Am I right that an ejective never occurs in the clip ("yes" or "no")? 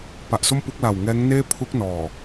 yes